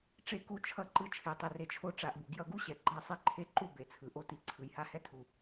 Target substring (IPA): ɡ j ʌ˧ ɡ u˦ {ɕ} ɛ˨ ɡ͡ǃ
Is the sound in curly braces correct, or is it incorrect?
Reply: correct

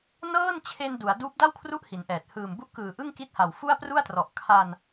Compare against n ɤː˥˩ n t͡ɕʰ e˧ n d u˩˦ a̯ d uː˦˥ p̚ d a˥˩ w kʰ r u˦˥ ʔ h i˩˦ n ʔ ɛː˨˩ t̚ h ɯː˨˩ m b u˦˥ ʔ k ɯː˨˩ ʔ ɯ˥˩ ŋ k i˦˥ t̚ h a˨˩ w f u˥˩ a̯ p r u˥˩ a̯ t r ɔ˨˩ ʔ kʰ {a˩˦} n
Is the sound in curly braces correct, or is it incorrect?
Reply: incorrect: a˧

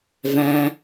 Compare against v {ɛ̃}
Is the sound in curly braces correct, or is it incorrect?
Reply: incorrect: æ̃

